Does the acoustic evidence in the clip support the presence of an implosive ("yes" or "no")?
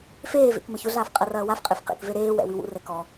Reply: no